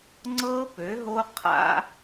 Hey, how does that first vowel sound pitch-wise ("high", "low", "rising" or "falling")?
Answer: high